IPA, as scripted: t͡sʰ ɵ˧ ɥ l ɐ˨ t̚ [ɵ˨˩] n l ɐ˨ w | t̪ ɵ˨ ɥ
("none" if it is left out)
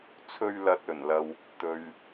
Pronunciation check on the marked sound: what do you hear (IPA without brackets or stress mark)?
ɵ˨˩